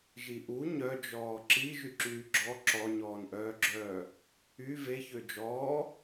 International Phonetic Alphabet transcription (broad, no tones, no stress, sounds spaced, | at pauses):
ʒ i ʔ u ɲ œ d͡ʒ ɔː ǁ i ʒ y ǁ yː ɡ͡ǁ ɔ ǁ ɔ ɲ ɔː n ʔ œː ɡ͡ǁ œː | y v e ç ø d͡ʒ ɔː